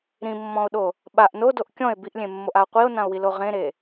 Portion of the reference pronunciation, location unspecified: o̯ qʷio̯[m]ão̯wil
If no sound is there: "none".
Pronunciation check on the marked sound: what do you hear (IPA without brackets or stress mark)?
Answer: n